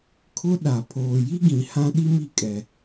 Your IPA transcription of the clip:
kʰ ʊ˦ ɗ a˨ pʰ oː˨ j i˦ ɡ ĩ˨ h ã˦ ɗ i˦ m i˨ kʼ ɛ˨

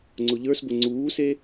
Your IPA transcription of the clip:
ŋ͡ǀ ʊ ʎ ə˞ s b ʊ ŋ͡ǀ uː s e

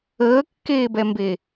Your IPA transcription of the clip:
əː kː eː b ɛ m b e

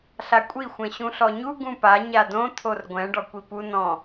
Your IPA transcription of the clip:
ɬ a kʷʼ i xʷ ɛ̃ ɕ ũ ɬ ɔ ɲ u ɡ ũ p a ɲ a d õ t̪ʰ o r ɡʷ ɛ̃ ɖ ɔ kʷ i p u n ɔ̃

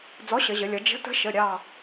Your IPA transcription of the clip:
d͡z ɔ˨˥ ɕ ə˩˧ ʑ ə˩˧ lʲ ʌ˩˧ d͡ʒ ə̤˨˥ t ə̤˨˥ ʃ ə˩˧˩ ɾʲ ɑ˥˧

